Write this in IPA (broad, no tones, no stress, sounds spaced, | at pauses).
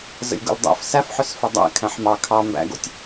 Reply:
z ə̰ lʲ ɡ o̰ l dˤ æ̰ f s æ f ħ ʏ s f ə dˤ æ̰ kʰ æ̃ ħ m ɑ kʰ ɑ m b æ̰ ɡ o̰ tʲ